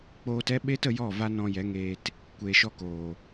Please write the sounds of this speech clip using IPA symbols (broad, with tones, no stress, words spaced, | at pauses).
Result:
k͡poː˦t ɛ˦ɓeː˦t ə˧jɔ˦˨ va˦nɔ̃˧jɛ˨˦ŋeː˧t | kʷeː˨ʃɔ˧koː˨